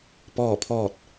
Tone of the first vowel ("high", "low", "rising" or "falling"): falling